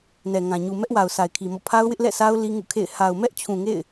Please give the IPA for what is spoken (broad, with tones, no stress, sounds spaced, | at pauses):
n ɛ˨ ŋ ã˨ ɲ u˨ m ɛ˦ ʔ w a˨ ʊ̯ sʰ a˨ ɪ̯ kʰ i˨ m ɔ̰˦˨ pʰ a˦ ʊ̯ w ɪ˦ ʔ l ɛ̰˦˨ sʰ a˦ ʊ̯ l i˦ ŋ ṵ˦˨ kʰ ḛ˦˨ ɪ̯ h a˨ ʊ̯ m ɛ˦ ʔ t͡ɕʰ ũ˨ ŋ ḛ˦˨ ɪ̯